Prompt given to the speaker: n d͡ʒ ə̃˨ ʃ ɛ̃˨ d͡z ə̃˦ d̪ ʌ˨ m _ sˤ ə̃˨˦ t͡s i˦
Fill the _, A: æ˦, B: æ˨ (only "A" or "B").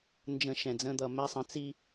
A